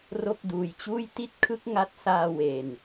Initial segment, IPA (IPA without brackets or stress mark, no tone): r